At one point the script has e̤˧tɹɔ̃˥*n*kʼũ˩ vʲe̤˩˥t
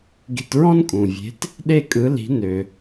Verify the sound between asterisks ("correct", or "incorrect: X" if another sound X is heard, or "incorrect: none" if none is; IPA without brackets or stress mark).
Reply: correct